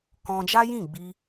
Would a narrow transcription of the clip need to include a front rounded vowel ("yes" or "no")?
no